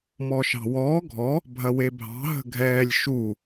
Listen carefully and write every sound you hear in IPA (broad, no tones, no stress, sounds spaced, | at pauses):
m ɔː ʃ ɑ̤ w ɔː ɡʱ ɔ | bʱ ɐ w e bʱ ɑ̤ ɦ ə̤ ɡʱ ɛː lʲ ʃ u